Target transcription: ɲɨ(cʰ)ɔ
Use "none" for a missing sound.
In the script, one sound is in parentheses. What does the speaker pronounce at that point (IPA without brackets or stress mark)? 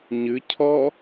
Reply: cʰ